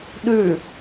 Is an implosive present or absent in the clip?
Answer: present